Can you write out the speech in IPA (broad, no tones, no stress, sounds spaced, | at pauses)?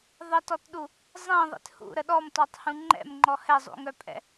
ðˤ ə t ɔ t ɗ u | zˤ ẽ ðˤ ḛ t h ṵ ɾ ə ɗ ɔ m t ɔ tˤ h ũ ŋ͡ǃ ɛ̰ m ŋ͡ǃ ɔ h ɛ zˤ ṵ ŋ œ pʼ ɛ̰